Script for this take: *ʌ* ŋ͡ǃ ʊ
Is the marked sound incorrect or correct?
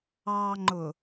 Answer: incorrect